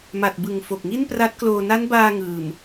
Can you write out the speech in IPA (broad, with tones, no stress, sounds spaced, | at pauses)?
m a˨˩ t̚ b ɯ˨˩ ŋ f o˨˩ k̚ ŋ i˥˩ n p r a˦˥ t̚ k l oː˧ n a˦˥ n b aː˧ ŋ ɯː˨˩ m